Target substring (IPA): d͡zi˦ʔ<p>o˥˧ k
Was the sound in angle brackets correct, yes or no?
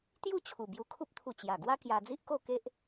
no